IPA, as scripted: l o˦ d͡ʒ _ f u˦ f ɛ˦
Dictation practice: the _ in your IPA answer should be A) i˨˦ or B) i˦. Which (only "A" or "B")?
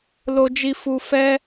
B